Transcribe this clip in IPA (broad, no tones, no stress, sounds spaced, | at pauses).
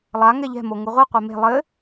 lˠ a ŋ ɛ ʎ ɛ̤ m o ŋ u ʁʷ i qʷ e m e̤ lˠ ɘ